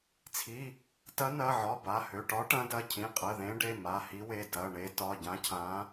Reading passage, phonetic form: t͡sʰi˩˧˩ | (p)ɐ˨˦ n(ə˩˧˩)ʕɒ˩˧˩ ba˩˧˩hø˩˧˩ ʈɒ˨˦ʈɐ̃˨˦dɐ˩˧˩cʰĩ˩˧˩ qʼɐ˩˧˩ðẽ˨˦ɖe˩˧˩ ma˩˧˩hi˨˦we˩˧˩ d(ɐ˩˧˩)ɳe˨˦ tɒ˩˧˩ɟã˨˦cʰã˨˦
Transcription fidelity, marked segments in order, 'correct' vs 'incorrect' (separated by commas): incorrect, incorrect, correct